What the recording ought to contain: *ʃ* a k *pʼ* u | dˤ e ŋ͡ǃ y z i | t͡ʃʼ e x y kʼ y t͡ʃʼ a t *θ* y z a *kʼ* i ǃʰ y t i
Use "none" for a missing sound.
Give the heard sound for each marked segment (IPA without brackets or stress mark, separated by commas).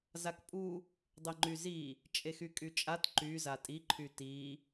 z, pʼ, ǃ, tʼ